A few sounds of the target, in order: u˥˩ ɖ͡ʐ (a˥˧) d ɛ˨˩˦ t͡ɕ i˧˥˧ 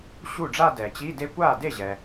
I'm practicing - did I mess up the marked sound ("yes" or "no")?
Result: no